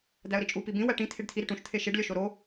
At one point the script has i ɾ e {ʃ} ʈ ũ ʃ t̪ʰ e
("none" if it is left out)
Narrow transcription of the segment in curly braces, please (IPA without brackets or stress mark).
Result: none